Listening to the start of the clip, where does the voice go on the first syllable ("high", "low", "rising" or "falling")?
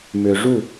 low